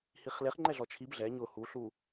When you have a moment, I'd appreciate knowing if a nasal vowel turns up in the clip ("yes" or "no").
no